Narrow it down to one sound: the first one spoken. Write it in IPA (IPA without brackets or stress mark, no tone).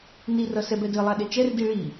n